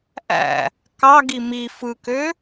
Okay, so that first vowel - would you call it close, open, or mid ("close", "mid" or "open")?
open